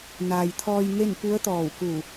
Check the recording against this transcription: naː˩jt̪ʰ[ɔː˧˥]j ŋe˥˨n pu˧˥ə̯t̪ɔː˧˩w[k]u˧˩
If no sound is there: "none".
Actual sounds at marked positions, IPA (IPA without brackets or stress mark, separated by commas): ɔː˧, k